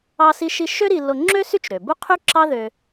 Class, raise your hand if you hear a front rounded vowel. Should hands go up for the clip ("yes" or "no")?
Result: yes